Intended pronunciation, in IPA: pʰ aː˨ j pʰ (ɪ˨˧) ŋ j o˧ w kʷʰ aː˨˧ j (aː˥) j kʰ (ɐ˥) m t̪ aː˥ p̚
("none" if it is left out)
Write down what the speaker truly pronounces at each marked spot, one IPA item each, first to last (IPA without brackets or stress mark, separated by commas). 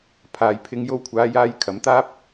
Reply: ɪ˨˧, aː˧, ɐ˨˥